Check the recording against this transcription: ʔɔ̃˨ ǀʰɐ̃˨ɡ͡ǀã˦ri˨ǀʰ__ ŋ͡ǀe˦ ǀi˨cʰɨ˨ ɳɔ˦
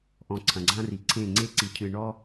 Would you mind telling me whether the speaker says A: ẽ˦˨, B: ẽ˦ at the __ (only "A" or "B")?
A